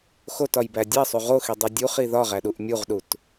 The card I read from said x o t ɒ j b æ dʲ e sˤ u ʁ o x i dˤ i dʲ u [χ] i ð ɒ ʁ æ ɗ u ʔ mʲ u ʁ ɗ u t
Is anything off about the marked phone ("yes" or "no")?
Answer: no